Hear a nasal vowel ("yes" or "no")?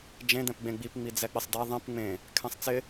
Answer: yes